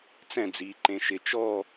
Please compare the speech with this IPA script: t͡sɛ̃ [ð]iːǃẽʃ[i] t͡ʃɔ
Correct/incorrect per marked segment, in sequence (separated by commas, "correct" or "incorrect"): incorrect, incorrect